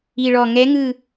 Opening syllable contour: low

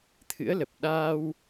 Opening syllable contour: rising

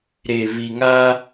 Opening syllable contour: low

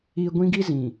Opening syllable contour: low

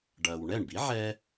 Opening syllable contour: low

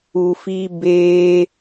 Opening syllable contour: low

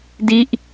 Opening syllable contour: falling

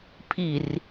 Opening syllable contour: low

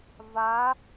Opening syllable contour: rising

